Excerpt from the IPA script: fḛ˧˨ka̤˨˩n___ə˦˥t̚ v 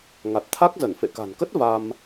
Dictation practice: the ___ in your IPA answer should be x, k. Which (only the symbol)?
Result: k